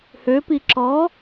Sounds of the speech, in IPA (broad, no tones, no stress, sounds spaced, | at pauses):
h ø p i ǁ ɔ